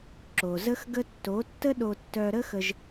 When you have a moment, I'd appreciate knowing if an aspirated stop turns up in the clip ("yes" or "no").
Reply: no